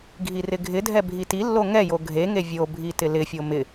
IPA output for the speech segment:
ɡʱ i r ɪ ɡʱ ɪ dʱ ɛ bʱ i t i lː o ŋ ɛ j o ɡʱ e ŋ e vʲ o bʱ i t ɪ l ɪ fʲ o m ɪ

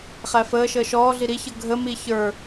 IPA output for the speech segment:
χ æ f əː ʃ əː ʃ ɔː ɮ i ɾ i ç ə ɡʱ ə m i ç ə˞

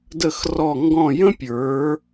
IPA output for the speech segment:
d ə˦˨ x r ɔ˦˨ ŋ ɡ ɔ̃˦˨ j ə̃˥ pʲ ə˞˨˦

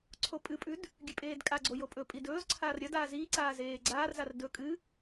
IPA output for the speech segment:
ǀʰ o pʼ ɨ pʼ ʉ d | ɡʲ ʉ pʼ eː d kʼ a ɡ͡ǀ o j o pʼ ɵ pʼ i d ɵː z ǀʰ aː r ɾʲ ɐ d aː z iː ǀ aː z eː ɡ͡ǀ aː r z a r d ɵ kʼ ɨ

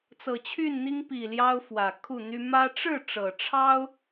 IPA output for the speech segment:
t͡s ɤ˨˩ t͡ɕʰ y˥˨ n n̪ i˦ ŋ p i˨˩ l j ɑ˦ ʊ̯ f w ä˨˩ kʰ u˥˨ n̪ y˦ m ä˦ ʈ͡ʂ ɻ̩˥˨ ʈ͡ʂ ɤ˨˩ ʈ͡ʂʰ ɑ˦ ʊ̯

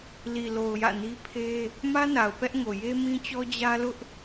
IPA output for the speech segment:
l i˨ l o˨ ʊ̯ j ä̰˦˨ n i˦ pʰ e˦ | m ä˦ n a˨ ʊ̯ p ɛ˦ ʔ ŋ o˨ j e˦ m ĩ˦ t͡ɕ ɔ˦ d͡ʑ ä˦ l ʊ˦ ʔ

